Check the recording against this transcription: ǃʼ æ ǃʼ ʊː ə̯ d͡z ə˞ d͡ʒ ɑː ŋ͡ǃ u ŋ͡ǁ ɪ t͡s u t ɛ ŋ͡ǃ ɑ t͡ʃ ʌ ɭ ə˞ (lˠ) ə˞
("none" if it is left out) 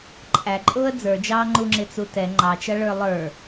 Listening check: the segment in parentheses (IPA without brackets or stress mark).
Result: lˠ